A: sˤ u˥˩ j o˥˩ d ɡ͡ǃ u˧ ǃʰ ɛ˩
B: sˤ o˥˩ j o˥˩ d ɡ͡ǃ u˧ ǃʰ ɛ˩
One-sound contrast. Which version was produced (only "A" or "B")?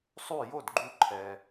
A